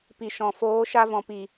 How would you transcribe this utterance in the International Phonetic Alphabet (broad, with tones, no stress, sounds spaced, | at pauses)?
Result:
p i˨ ʃ ɔ̃˨ f oː˨˦ ʃ a˧ v ɔ̃˨ p i˨